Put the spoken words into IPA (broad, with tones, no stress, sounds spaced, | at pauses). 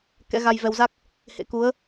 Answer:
k ɛ̰˧˥ ɣ a˧ j v ɛ˧ w z a˦˥ k̚ | h ḛ˧˥ k u˨˦ ə̯